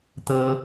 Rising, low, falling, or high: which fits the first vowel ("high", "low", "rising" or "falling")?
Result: high